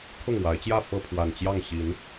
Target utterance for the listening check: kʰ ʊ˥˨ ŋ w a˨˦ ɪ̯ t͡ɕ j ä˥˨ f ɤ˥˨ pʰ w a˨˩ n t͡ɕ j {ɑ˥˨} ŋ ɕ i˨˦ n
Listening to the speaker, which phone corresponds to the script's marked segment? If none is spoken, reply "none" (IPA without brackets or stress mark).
ɑ˥˨